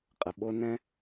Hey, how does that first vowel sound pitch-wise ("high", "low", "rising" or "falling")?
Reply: low